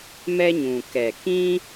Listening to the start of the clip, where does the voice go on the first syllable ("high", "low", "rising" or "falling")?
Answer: high